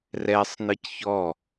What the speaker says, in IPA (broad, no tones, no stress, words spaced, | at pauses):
rɛsˤ nɯcçɔ